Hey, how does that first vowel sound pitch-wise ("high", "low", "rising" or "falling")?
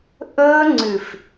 high